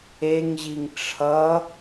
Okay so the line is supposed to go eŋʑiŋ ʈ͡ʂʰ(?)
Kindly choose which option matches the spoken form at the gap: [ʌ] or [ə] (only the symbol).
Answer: ʌ